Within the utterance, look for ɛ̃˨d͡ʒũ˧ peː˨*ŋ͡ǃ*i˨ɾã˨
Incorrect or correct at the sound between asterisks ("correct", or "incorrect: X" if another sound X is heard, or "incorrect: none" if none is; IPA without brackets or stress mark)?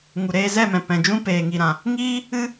incorrect: ŋ